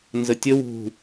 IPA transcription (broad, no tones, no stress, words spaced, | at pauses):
nzətʲə wṳ